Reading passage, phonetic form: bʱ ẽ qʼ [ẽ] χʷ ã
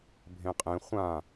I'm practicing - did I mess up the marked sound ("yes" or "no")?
no